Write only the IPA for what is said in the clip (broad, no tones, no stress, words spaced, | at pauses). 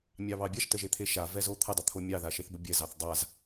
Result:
mʲɑβɑbʲaʃ təʒet̪ʰeʃa vɛzot̪ʰə dˤət̪ʰomʲɑ ðaʃeθbəbʲɛ zɑθdˤaz